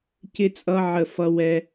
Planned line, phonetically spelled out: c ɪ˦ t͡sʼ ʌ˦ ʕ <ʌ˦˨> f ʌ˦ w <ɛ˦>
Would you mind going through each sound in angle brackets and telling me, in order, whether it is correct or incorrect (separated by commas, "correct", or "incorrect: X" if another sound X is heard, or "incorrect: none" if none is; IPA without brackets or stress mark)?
incorrect: ə˦˨, correct